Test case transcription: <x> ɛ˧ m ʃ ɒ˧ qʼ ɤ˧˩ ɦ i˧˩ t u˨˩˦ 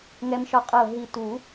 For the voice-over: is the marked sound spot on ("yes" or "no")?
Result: no